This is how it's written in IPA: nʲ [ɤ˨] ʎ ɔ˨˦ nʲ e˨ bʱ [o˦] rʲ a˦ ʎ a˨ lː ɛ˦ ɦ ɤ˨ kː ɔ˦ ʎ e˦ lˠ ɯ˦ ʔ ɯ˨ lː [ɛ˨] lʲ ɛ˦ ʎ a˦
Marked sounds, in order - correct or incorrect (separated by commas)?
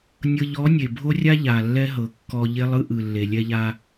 correct, correct, incorrect